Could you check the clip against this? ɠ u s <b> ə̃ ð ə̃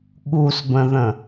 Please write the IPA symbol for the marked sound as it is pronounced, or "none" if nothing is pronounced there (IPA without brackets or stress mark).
b